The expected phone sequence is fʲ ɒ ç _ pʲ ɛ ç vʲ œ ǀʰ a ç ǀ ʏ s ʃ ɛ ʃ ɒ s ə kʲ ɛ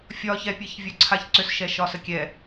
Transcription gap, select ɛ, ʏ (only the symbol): ɛ